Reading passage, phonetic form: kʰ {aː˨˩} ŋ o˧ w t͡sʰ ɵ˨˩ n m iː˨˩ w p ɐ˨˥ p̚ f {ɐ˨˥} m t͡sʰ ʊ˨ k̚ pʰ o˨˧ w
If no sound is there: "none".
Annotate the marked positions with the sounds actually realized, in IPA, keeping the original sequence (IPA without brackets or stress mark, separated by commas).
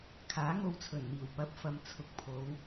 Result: aː˨˥, ɐ˨